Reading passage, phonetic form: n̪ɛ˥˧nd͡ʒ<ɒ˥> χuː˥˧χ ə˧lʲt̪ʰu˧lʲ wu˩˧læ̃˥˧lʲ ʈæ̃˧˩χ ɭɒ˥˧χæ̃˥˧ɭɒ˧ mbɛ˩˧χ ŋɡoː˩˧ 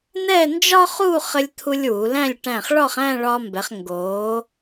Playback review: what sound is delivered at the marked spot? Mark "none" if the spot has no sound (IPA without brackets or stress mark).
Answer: ɒ˥